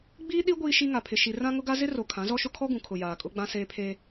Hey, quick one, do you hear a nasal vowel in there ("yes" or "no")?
yes